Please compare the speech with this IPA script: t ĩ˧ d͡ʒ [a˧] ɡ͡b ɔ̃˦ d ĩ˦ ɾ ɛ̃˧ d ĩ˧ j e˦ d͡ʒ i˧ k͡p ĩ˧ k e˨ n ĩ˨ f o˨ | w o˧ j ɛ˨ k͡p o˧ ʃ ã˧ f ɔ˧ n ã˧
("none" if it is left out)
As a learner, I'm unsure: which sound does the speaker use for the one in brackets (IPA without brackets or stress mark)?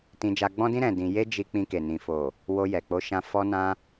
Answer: a˧